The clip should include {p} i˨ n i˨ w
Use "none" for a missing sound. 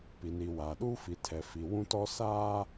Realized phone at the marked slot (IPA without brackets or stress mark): p